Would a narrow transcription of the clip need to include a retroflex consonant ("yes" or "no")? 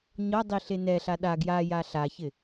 no